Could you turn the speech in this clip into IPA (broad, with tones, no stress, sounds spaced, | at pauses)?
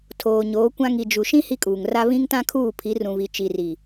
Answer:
tʰ oː˨ ɲ oː˨˦ kʷ ã˦ ŋ i˨ d͡ʒ u˨ ʃ ĩ˦ h i˦ kʼ uː˨ ŋ r a˦ β ĩ˦ ŋ t ã˦ kʰ uː˦˨ pʰ i˨˦ r ũ˨ β i˨ t͡ʃ i˨ r i˨